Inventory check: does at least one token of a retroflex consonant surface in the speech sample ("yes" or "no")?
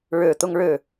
yes